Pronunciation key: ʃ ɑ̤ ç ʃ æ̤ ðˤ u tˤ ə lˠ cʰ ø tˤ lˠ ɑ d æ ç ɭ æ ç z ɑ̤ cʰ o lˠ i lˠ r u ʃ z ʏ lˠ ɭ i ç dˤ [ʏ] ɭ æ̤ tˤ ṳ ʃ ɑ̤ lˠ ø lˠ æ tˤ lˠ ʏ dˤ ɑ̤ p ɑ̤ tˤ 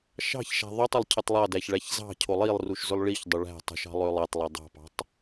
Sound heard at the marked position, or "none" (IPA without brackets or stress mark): ʏ